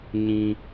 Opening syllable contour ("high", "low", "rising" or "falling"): high